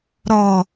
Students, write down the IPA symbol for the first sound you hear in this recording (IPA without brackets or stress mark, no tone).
ɾ